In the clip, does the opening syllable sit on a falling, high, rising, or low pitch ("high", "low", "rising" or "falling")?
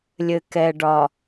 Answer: low